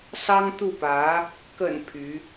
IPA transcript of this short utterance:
sɑ˥ŋt̪u˥˩pä˧˥ | kə̰˨˩n pʰy˧˥

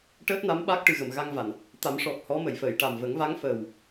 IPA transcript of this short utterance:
ʈəː˦˥t̚na˧˥m ɓa˦˥k̚ ʈɨ˨˩ɣə˨˩˨m ɣa˧ŋ va˨˩˨n | t̪a˨˩˦mʂɔ˨˩k̚ hɔ˧˥mə˨˩˨jfəː˨˩˨j ʈa˨˩mvə˨˩˦ŋva˧˥ŋfəː˨˩w

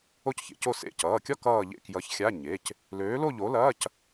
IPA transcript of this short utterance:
o˥˧cçḛ˩˧co˥˧ sḛ˧˥˧ cʌː˩˧˩kʲɒ˥˧ kʌː˥˧ʎḛ˥˧ kjʌ˨˥ç xʲa˧˥˧ ɲe˩˧˩c | løː˨˥lo˥˧ʎo˨˥lɐː˧˥˧c

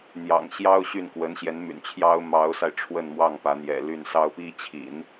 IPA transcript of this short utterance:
n̪jɑ̰˨˩ŋɕjɑ˥ʊ̯ɕy˥˩n kwə˧˥nɕjɛ˧˥nmy̰˨˩nt͡ɕʰjɑ˥ʊ̯ mɑ˧˥ʊ̯sa˧ɪ̯ ʈ͡ʂʰwə˥˧nmwɑ˥˩ŋpä˧˥n̪jɛ̰˨˩ ly˥˩nsɑ˥ʊ̯pi˥ t͡ɕʰḭ˨˩˦n

